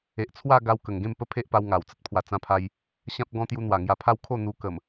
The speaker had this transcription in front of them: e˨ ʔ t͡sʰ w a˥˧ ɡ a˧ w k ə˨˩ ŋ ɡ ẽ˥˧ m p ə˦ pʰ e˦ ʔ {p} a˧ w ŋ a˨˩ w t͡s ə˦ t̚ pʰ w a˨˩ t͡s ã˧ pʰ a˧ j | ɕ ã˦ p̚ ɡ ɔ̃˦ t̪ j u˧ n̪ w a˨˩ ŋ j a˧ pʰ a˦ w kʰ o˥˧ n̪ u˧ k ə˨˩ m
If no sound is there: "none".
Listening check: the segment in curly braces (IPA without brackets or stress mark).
p